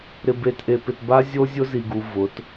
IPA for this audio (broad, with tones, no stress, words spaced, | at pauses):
ɾɪ˨be˨tʔe˨pɪ˨t ba˦ zʲo˦zʲʊ˦zi˨ɡu˨ vʊ˨˦t